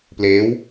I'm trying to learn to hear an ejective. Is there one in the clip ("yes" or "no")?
no